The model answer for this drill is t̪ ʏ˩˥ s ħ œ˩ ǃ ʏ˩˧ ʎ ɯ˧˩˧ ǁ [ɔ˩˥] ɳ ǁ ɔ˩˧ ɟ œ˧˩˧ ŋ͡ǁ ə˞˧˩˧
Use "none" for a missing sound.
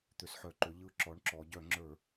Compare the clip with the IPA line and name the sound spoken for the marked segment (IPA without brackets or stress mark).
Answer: ɔ˩˥